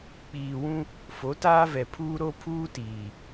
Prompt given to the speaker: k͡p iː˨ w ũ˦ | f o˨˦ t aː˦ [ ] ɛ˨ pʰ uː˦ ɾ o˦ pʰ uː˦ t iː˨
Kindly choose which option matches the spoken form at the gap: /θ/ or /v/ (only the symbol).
v